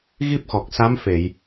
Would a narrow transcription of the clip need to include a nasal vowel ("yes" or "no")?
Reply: no